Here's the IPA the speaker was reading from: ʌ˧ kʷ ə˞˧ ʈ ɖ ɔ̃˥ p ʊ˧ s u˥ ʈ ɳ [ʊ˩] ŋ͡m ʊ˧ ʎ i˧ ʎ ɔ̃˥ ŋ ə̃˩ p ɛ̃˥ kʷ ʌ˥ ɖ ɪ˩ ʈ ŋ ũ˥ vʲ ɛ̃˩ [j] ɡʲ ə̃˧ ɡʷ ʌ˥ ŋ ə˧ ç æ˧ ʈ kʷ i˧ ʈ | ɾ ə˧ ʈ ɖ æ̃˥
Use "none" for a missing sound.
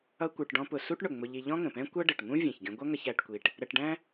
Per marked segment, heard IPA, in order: ʊ˩, ç

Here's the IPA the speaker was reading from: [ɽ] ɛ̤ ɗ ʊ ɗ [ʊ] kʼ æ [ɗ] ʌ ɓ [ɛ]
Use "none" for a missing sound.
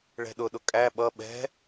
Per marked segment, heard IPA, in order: ɭ, ʊ, ɓ, ɛ̤

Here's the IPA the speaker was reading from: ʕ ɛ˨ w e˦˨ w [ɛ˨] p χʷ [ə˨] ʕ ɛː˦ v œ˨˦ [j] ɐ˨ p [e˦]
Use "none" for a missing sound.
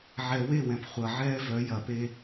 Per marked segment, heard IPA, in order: ɛ̃˨, ɐ˨, j, e˦

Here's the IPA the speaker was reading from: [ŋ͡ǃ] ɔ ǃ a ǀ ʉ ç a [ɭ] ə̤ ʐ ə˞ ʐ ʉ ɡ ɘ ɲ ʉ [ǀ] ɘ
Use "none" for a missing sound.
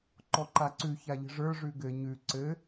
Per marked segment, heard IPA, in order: ǃ, ʎ, ǀ

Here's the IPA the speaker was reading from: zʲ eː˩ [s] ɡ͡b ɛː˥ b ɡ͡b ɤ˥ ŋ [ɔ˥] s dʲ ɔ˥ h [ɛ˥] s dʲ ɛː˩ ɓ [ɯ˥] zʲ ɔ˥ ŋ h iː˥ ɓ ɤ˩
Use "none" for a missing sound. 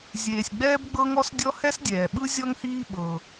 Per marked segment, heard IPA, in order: sʲ, ɔ˥, ɛ˥, ɯ˥

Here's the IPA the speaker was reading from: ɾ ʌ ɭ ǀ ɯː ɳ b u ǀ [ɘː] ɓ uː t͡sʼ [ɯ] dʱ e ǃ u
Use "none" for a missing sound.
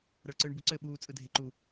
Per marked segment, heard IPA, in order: ɘː, ɯ

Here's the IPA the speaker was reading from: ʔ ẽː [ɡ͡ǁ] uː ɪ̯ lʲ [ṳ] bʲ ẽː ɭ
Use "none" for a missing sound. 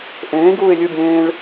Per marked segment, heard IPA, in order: ɡ, u

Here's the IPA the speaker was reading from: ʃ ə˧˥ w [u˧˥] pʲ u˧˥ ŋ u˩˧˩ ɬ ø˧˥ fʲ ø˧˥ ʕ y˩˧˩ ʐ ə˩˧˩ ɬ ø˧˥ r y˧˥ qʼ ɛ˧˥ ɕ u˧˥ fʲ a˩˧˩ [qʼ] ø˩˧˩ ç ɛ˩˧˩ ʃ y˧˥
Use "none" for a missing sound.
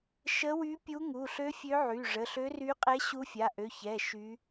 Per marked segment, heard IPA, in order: y˧˥, ʔ

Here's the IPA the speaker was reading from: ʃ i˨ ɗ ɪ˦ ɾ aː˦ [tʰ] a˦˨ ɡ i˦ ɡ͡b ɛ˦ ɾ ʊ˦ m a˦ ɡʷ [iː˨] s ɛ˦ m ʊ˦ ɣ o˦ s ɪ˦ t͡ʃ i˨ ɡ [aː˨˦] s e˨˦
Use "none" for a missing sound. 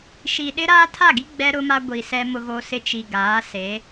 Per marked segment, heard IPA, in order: tʰ, i˨, aː˨˦

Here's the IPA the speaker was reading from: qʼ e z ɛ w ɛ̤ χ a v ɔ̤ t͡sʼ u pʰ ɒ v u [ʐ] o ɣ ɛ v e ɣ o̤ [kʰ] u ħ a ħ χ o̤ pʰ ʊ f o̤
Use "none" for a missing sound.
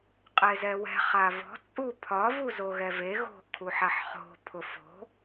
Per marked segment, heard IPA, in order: z, kʰ

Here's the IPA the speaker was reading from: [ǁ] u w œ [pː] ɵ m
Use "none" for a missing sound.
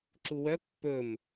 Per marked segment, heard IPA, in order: ǁ, pː

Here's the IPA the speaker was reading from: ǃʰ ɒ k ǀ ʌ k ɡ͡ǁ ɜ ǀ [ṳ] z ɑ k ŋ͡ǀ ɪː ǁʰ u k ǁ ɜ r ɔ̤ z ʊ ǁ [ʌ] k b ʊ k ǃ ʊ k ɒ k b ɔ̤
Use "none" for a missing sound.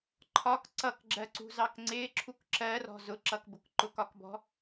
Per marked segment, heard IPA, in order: ṳ, ʌ

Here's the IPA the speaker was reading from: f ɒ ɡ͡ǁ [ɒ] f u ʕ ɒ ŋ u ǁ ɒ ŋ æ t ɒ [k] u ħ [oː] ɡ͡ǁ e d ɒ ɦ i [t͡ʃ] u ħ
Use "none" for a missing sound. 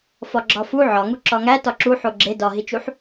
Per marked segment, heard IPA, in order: ɒ, ǁ, o, t͡ʃ

